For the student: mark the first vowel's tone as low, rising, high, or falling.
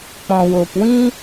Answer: low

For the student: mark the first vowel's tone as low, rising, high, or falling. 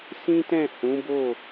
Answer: high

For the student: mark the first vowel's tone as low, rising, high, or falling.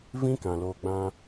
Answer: high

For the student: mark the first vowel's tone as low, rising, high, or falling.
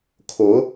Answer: rising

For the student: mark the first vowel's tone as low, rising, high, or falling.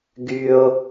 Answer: high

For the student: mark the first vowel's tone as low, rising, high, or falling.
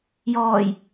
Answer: low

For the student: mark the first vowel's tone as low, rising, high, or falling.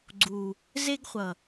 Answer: low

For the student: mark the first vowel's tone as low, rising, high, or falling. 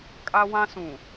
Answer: high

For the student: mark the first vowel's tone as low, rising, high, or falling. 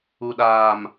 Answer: low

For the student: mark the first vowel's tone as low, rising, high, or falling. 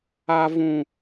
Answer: high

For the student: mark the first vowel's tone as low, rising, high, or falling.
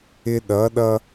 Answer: high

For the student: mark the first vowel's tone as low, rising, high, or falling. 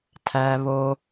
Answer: high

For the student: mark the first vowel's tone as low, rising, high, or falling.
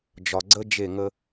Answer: low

